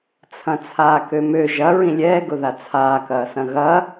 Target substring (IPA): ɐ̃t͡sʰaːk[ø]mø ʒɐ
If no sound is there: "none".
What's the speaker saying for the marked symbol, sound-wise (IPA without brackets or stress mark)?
ø